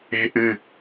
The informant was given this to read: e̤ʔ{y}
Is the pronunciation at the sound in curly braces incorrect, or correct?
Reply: incorrect: ɨ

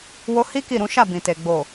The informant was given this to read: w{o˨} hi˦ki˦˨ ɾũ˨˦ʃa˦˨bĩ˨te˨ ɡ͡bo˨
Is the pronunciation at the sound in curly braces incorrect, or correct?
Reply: incorrect: o˧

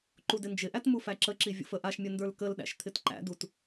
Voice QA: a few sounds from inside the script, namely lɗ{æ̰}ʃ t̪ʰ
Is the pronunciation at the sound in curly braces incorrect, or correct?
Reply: correct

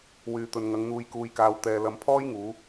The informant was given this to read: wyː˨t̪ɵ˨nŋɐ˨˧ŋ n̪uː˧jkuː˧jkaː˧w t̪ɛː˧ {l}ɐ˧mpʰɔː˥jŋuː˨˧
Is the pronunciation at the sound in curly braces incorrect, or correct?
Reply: correct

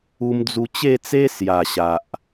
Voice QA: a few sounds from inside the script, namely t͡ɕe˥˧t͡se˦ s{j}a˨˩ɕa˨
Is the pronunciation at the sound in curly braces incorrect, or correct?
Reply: correct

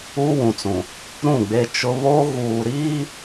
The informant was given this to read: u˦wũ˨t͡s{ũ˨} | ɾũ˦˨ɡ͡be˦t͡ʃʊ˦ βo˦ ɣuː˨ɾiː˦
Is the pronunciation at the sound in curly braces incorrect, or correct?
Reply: correct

